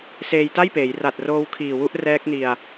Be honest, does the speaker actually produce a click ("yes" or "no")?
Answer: no